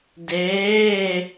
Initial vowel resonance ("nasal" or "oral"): oral